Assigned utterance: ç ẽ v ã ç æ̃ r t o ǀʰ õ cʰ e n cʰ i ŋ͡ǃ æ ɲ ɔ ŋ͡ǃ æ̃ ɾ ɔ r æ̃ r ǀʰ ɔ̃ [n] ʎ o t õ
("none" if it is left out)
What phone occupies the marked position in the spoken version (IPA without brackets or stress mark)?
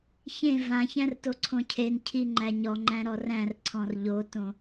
r